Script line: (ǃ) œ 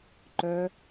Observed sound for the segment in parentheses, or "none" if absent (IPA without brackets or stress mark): ǃ